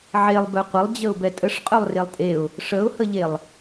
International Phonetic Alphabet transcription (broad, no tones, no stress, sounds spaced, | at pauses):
ʕ e lˠ b œ qʷ ə lˠ d͡ʑ ə ʊ̯ b ɛ tʼ ə ʂ qʼ œ lˠ r e lˠ tʼ e ʊ̯ | ʂ ə ʊ̯ h ə ʎ e lˠ